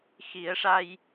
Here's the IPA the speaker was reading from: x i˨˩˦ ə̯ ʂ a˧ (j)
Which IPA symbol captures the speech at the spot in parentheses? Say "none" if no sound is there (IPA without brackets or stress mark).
j